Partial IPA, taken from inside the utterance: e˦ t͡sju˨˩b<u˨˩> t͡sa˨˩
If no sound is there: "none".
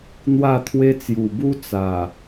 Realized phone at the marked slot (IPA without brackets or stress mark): u˦